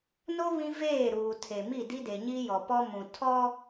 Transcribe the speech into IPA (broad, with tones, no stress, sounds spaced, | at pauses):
n o˦ β ĩ˦ v eː˦˨ ɾ uː˨ tʰ e˨ m i˦˨ d i˦ d e˨ ɲ i˦ j ɔ˨ p ɔ˦ m ũ˨ tʰ ɔ˦